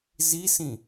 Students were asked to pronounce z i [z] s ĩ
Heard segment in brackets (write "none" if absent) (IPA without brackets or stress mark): none